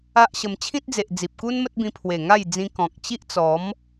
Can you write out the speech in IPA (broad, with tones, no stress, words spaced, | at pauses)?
a˦ʔɕə˧m t͡ɕʰĩ˦t̚d͡ze˨ʔd͡zi˨p̚ku˦n mə˦t̚bĩ˧ pʰwe˨˩ŋa˥˧jd͡zĩ˧ kɔ̃˨k̚ t͡ɕi˦ʔt͡sɔ˨˦m